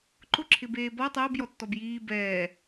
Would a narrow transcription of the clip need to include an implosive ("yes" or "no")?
no